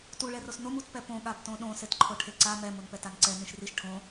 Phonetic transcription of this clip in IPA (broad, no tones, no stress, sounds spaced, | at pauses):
t u ɭ ɛ r o s n o m u t p ɛ p õ ɠ a b t õ ɗ õ s e t ǃʰ o ʈʰ e ǀ a m ɛ m o n p ɛ t a n ǀ ɛ n ĩ ʃ r i ʃ ʈʰ õ